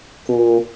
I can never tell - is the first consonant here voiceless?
yes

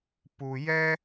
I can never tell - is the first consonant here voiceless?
yes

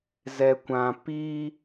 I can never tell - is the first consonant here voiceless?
no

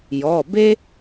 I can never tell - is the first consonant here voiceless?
no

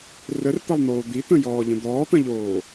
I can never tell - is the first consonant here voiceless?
no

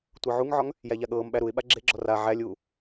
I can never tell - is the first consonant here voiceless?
yes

